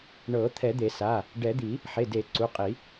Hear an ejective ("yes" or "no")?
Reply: yes